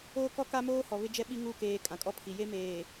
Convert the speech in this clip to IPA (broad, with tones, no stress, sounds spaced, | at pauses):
oː˦ k ɔ˦ k a˦ m oː˦ h ɔ˨ β ɪ˦ d͡ʒ ɛ˦ ɓ i˦ ŋ u˦˨ k eː˨ kʼ ã˨ kʼ ɔ˦ pʰ i˨ j e˦ m eː˨